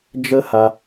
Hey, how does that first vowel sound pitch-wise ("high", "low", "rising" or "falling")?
high